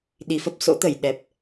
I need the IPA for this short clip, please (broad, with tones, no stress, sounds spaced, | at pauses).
ɗ i˨˩ f ə˦˥ p̚ s o̰˧˥ t̪ ə˧˩ j ɗ ɛ˨˩ p̚